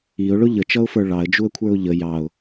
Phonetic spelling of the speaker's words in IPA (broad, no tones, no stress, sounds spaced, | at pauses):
i ʊ̯ ɭ ʊ ʎ ə t͡ʃ ʌ ʊ̯ f ə˞ ɭ ɑ ə̯ d͡ʒ u ə̯ kʷʰ ə˞ ʊ̯ ʎ ə j ɑ ʊ̯